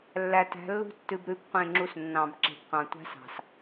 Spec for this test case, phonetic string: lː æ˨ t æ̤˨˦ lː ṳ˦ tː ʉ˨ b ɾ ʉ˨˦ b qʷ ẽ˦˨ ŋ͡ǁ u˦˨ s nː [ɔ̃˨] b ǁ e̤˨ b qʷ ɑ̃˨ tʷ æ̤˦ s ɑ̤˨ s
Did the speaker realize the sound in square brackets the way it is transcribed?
no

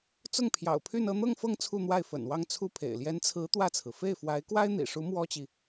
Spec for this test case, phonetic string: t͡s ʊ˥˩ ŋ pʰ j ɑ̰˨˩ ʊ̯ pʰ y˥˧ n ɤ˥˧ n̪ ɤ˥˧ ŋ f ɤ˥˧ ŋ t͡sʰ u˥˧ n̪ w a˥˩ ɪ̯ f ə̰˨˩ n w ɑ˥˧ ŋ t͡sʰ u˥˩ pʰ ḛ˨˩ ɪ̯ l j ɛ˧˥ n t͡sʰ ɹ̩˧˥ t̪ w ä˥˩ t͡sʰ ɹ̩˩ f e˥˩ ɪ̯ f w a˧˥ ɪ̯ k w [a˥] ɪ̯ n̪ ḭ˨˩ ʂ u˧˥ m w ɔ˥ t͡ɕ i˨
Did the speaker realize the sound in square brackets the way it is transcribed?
yes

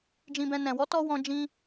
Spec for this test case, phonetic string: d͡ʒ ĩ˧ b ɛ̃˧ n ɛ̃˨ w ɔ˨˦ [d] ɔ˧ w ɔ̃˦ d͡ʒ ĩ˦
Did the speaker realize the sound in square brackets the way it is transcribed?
no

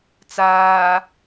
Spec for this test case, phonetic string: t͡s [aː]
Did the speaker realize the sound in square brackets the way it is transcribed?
yes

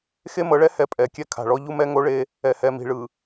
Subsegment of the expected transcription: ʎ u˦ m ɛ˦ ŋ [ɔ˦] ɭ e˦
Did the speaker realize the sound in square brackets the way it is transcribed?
no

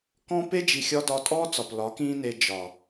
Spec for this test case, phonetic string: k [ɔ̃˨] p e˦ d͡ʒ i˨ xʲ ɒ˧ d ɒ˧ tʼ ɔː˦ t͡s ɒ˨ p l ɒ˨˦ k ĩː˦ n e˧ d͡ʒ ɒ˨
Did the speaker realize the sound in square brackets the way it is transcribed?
no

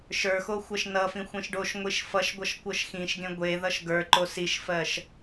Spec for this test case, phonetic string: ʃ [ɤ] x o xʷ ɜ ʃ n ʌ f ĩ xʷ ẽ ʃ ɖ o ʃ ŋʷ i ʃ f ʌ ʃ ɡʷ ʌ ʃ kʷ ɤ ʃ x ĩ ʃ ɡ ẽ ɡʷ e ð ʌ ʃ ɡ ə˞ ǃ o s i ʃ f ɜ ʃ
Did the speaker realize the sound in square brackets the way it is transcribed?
no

